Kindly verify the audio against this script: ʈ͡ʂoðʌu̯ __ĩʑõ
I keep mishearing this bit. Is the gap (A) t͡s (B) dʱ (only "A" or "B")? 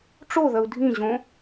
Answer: B